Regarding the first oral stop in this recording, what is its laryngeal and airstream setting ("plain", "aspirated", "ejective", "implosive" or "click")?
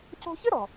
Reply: plain